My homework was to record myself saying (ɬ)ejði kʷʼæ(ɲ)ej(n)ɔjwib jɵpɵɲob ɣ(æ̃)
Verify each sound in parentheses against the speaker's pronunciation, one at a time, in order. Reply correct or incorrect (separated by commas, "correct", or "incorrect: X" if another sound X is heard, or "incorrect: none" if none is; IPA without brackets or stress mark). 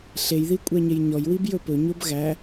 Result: correct, correct, incorrect: ɲ, incorrect: æ